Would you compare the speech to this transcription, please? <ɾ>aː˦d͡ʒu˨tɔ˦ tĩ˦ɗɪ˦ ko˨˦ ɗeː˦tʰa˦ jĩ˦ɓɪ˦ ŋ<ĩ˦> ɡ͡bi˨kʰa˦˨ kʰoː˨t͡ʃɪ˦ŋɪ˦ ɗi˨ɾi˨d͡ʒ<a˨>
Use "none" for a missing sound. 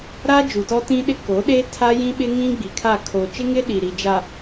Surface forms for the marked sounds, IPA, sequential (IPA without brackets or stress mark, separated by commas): ɾ, ĩ˦, a˨